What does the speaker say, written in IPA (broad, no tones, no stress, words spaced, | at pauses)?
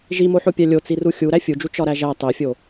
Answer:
ʒimoħopʲæ lʲot͡siru xʲu ɾæfʲud͡ʒu t͡ʃɒɾæʒæ tˤefʲo